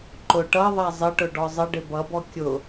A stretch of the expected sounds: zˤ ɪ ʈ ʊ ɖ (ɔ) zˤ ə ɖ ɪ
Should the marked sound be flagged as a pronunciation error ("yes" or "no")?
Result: no